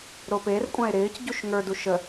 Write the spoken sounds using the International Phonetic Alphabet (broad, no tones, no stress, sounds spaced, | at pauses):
ɾ o p e r kʷʼ ã e̯ ɾ ɪː c ɟ u ʃ ŋ ə˞ d u ʃ ə